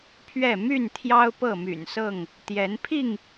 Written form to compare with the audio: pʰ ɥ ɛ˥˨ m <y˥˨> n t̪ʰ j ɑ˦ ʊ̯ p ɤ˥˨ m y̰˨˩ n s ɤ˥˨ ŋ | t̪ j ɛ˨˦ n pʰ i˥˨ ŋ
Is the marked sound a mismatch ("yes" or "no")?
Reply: no